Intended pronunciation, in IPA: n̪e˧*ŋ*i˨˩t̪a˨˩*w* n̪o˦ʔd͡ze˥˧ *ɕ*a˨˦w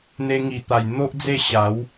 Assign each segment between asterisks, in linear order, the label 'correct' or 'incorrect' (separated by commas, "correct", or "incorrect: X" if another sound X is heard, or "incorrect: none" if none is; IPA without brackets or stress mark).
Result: correct, incorrect: j, correct